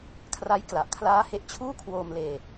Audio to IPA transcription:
kʰ r a˦˥ j k l a˨˩ ʔ kʰ l aː˦˥ h e˦˥ ʔ t͡ɕʰ uː˥˩ kʰ w oː˧ m l eː˧

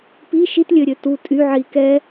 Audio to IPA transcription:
p i ʃ i t lʲ ø ɾʲ ø t u tʼ y ʕ i k ɛ

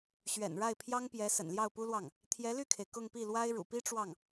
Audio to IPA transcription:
ɕ ɥ ɛ̰˨˩ n ɻ a˥˩ ɪ̯ pʰ j ɑ˥ ŋ p j ɛ˧˥ s ə̰˨˩ n l j ɑ˥˩ ʊ̯ p u˥ l w ɑ˥˩ ŋ | t̪ʰ j ɛ˧˥ l y˥˩ kʰ e˩ ɪ̯ k ʊ˥˧ ŋ p i˥˩ l w a˥ ɪ̯ ɻ ṵ˨˩ p i˥ ʈ͡ʂ w ɑ˥˩ ŋ

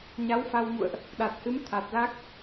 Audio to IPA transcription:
ɲ a˨˦ w f a˧ w ŋ ṵ˧˨ ə̯ ʔ | ɗ a˨˩ t̚ h ɨ˨˦ m t̪ʰ a˨˩ t̚ l a˦˥ k̚

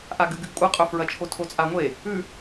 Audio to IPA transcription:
ʔ a ɡ ɨ ɡ ɨ ɡ kʷʼ ɐ qʼ ɵ f ɹ ɐ t͡ʃʰ o tʰ o t͡sʼ a ŋʷ e | ʉ

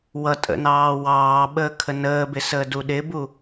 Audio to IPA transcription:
w ʌ tʼ ə̰ n ɑː w ɑː ɓ əː kʰ ə n əː b ɪ s əː d u ɗ ɪ b u

